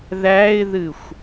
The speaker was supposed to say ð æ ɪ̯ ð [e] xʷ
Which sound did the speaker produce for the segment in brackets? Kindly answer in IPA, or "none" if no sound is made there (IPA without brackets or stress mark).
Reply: ɨ